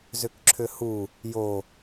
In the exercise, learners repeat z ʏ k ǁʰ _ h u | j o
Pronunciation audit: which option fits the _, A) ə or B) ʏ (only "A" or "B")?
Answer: B